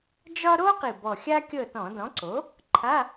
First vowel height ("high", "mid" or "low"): low